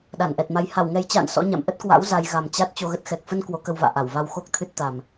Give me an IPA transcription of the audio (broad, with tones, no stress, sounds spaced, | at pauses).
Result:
ɗ a˧˩ n ʔ ɛ˨˩ t̚ m a˨˦ j h a˧˩ w ŋ ɛ˨˩ j t͡ɕ a̰ː˧˨ n s ɔ̰˧˥ ɲ a̰˧˨ m ʔ ə˦˥ t̚ k w a̰˧˥ w z a˧ j ɣ a˨˩ m t͡ɕ a˦˥ t̚ t͡ɕ o˧ ɣ ə˦˥ t̚ x ɛ˨˩ k̚ f ə˧ n k w o˨˦ k ə˧ w v a̰ː˧˨ ʔ a˧˩ w v a˧ w x o˦˥ k̚ t̪ʰ ɨ˦˥ t̚ t̪ a˨˩ m